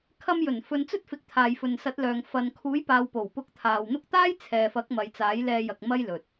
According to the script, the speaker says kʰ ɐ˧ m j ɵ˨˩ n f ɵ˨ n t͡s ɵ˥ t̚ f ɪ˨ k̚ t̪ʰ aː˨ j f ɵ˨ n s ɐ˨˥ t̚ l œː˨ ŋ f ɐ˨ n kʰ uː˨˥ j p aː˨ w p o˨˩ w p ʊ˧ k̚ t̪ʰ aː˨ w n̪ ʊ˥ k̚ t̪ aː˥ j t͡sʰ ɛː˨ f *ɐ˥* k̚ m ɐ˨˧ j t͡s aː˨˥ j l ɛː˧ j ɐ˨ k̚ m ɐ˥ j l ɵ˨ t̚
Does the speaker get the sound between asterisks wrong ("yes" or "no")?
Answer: yes